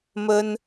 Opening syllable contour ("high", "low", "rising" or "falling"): high